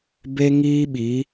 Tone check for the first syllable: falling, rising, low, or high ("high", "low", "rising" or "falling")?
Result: high